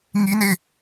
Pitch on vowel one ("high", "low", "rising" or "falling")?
high